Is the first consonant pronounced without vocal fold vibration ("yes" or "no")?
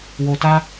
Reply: no